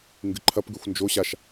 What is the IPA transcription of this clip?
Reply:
ŋɡɨǃʰɐpɡʉxʷ nd͡ʒo ɕaʃ

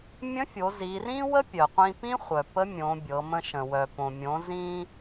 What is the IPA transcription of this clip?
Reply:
mʲə̃˧˥fʲo˩˧ zi˩˧rĩ˥wə˥ pʲœ˩qʷĩ˧pĩ˥ χʷœ˩pə˧˥mʲõ˩˧ bʲɤ˩˧mə̃˧ʃə̃˩ wœ˩põ˩mʲõ˩˧ zĩ˧

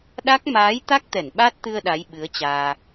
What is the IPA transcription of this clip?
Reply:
ɗa˦˥k̚ maː˨˦jt̪a˦˥k̚t̪ɛ˧˩n ɓa˦˥t̚t̪ɨ˧ə̯ ɗa˨˦jɓɨ˨˦ə̯t͡ɕaː˧

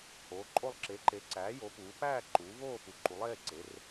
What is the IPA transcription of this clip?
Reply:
hoː˨˦ǃʼo˥˧lˠ ǁe˨˦ǃe˨˦ǀæː˨˦ jo˨˦puː˨˦ pæː˥˧ ǃuː˨˦voː˥˧ pu˨˦ǃu˨˦lˠeː˩˧˩ǀe˨˦r

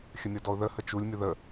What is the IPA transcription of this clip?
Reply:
xʲəmʲʌdɔʊ̯ðə hət͡ʃulʲ mʲʊðə

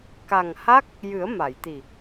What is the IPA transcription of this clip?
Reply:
ka˨˩ŋha˦˥k̚ | jɨ˨˩˦ə̯ma˨˩˨j t̪i˨˩

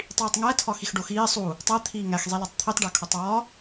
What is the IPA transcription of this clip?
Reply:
tˤiːtˤŋæ tʰɒxixɖoxiː sˤu | tˤæ t̪ʰiːŋæx zˤilɒtˤt̪ʰitˤ ɖækʰotˤwɒ

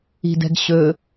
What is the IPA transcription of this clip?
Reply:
i̤dɛ̤ɡɕɵ

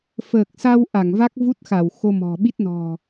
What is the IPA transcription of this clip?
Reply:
fəː˨˩k̚sa˧w ʔa˧˩ŋva˦˥k̚vu˦˥t̚ xa˧˩wxo˧mɔ̤˨˩ɓi˦˥t̚ nɔ̤˨˩

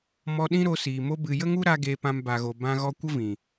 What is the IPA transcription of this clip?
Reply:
mɔ˧ɗĩ˦ɾo˧ siː˨ mo˧bɨ˨ jə˦ŋu˦ɾa˧ ɡeː˧pã˧mbaː˨ɣo˨ bã˧ɣɔ˧kʷə˦ vĩ˨

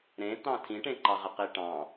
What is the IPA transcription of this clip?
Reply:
ɾẽt̪ɑ̃ tʰĩʈẽǃɑʁe qiʈɑ̃

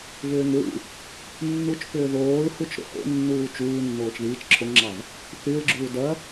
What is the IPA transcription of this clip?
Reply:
vʏːŋɹṵ | nːut͡ʃpʏː ðoːɹhut͡ʃ ɾo̰ho̰ nːuːt͡ʃuː nːoːt͡ʃðiːt͡ʃ ǁʰoŋŋ͡ǁɑv | θyɹɡ͡ǁuː dɐ

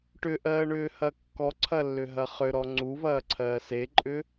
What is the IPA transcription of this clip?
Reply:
ʈʏʔɜːɳʏːhɐ kːɔǀʰɐlːʏɦɐ χʏɾɔ ŋ͡ǀuvɐːǀʰɜː seǃʼʏ

